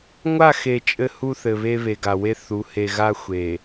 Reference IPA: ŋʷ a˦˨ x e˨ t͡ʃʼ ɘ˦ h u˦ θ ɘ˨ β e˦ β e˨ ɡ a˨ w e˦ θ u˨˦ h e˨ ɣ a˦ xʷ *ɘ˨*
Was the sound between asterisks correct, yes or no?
no